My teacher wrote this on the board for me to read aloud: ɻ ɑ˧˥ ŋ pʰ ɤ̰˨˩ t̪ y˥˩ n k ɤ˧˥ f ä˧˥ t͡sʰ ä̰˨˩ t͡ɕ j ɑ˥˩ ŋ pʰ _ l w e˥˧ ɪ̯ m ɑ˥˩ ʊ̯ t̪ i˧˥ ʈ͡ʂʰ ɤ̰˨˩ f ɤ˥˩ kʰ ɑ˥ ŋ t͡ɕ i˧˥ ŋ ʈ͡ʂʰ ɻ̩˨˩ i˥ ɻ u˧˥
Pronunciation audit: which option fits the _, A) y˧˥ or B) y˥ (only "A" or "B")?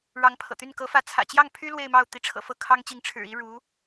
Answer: B